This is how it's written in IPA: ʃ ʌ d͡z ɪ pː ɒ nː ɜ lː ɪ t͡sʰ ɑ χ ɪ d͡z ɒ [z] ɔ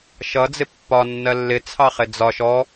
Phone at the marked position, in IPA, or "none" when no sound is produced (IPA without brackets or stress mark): ʃ